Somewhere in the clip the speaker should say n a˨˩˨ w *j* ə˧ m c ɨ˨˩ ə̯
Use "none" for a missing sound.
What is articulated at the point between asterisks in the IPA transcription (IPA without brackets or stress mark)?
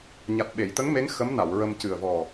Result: ɹ